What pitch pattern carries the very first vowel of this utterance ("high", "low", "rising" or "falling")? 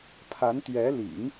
rising